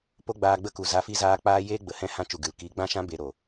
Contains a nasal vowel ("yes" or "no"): yes